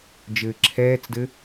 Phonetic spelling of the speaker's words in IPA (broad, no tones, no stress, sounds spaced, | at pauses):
d͡ʒ ɘː ǁʰ ɛː t͡s d ɘ